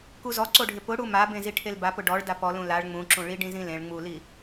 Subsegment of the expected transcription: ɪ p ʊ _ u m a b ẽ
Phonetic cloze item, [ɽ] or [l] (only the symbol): ɽ